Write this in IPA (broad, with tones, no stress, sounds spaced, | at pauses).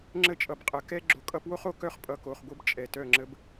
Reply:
ŋ͡ǁ ə˦ t͡ʃʼ ʌ˨ b qʼ ə˨˦ k ɛ˦ ɡ͡ǁ o˨˦ kʼ ʌ˦ p w o˦ χ o˨ k œ˦ χ pʼ ʌ˨ k o˨ χ ɡʷ ɤ˦ b t͡ʃʼ ɛ˨ t œ˦˨ ŋ͡ǁ ə˦ b